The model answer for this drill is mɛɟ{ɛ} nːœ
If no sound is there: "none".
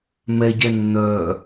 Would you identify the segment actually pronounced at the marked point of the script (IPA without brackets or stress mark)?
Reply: ɛ